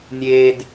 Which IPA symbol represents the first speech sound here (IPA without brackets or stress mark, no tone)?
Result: nʲ